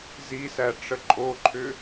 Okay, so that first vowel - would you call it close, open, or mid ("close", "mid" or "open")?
close